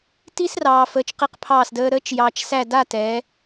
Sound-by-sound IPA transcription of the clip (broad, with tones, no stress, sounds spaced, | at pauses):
t i˥ s r ɑː˧ f əː˧ t͡ʃ q i˥ q pʰ ɑː˥˧ s d əː˥ ɾ əː˥ t͡ʃ j ɑː˧ t͡ʃ s æ˥˧ d a˥˧ t ɛː˩˧